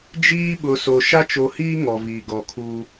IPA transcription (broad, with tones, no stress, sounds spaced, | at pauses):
d͡ʒ iː˦ ɓ ʊ˨ s o˨ ʃ a˦ t͡ʃ o˨ h iː˦ ŋ ɔ˨ v iː˨ ɡ ɔ˨ kʰ u˦